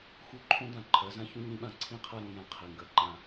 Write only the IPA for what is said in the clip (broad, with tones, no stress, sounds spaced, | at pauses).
x u˦ ǃʰ õ˦ d ã˨ ǃʰ ɜ˨˦ z ã˦ ç ũ˦ ɲ ĩ˧ ɓ ã˨ ǀʰ ĩ˦ qʰ a˦ ɾ õ˧ j ã˦ qʰ i˨ ŋ ɡ ɜ˨ ǃ ã˧